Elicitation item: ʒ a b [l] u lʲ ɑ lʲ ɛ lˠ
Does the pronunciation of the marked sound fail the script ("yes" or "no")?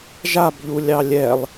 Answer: yes